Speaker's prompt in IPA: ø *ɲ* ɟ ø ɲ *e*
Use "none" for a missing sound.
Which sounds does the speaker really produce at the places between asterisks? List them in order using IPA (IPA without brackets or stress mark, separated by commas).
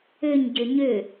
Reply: ɲ, ø